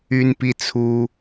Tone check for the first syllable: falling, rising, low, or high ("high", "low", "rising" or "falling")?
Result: high